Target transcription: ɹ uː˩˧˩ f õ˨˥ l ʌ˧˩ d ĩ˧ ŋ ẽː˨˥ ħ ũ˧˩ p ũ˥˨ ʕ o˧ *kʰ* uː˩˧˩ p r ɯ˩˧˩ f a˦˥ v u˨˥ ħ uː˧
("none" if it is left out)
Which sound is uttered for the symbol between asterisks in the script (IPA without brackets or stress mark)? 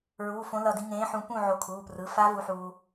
kʰ